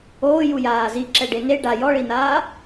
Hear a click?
yes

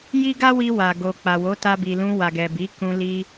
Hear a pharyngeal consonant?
no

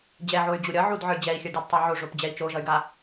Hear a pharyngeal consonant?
yes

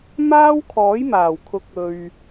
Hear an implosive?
no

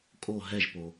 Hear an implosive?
no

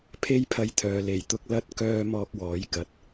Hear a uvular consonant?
no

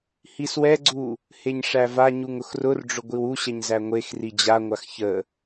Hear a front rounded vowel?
no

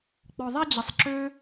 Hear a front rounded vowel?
yes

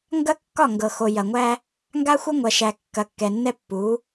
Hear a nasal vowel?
no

